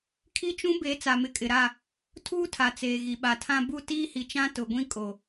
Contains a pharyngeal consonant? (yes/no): no